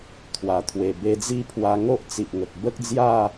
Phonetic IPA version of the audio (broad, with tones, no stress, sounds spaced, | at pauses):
t̪ʰ w a˨˩ t̪ʰ w e˨˩ b e˧ d͡z i˥˧ pʰ w a˧ ŋ o˦ ʔ t͡s i˨ ʔ ŋ ə˨ k̚ b ə˦ k̚ d͡z j a˥˧